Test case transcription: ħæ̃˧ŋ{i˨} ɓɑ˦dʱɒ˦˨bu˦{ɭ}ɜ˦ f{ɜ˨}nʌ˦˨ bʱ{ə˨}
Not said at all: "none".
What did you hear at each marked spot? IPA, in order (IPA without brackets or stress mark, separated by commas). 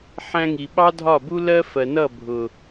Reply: i˨, l, ɜ˨, ʊ˨